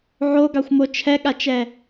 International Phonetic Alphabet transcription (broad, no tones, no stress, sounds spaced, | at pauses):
ʕ o ɡ ɑ xʷ m o t͡ʃʰ ɛ ɠ a t͡ʃ ɛ